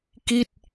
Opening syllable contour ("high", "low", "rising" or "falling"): falling